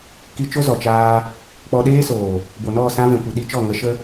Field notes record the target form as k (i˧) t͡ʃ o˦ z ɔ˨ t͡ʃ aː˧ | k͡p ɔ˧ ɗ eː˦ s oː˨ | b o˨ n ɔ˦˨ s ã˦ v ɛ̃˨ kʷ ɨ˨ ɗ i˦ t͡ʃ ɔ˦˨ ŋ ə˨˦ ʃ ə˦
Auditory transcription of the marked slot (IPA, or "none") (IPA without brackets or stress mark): i˧